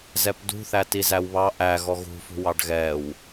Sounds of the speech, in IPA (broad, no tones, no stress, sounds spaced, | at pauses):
z ɛ p d ṳ θ æ t i z æ w β ɑ ʔ æ ɣ ɔ ɣ ṳ f ṳ w ɑ ɖ ɣ ɛ w